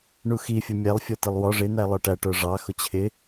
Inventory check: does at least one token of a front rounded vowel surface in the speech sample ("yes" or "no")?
no